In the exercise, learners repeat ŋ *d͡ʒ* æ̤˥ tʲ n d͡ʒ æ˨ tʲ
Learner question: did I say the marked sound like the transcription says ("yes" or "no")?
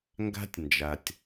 no